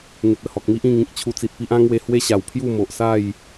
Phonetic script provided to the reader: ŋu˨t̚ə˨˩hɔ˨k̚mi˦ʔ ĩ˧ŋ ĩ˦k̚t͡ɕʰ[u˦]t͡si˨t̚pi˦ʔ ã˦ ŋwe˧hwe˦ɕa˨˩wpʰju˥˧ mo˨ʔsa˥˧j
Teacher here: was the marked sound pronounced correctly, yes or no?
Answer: no